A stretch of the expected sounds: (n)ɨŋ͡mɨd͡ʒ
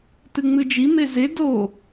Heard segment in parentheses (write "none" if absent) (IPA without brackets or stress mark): t